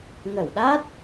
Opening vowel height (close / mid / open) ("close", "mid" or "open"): mid